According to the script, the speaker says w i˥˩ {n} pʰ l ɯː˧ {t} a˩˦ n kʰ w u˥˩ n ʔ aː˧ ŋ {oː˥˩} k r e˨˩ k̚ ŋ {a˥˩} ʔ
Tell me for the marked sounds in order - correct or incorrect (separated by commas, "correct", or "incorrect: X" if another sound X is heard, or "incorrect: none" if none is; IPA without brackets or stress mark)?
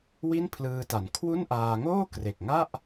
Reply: correct, correct, correct, correct